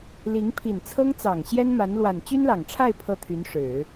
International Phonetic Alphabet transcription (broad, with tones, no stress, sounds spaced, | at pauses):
l i˧˥ ŋ pʰ i˨˩ n t͡sʰ ɤ˥ ŋ t͡s ɑ˨˩ ŋ ɕ j ɛ˥ n m a˧˥ n l w a˨˩ n t͡ɕ y˥ n l ɑ˨˩ ŋ ʈ͡ʂʰ a˥˧ ɪ̯ pʰ ɤ˥˩ t̪ʰ y˧˥ n ʂ ɻ̩˨˩˦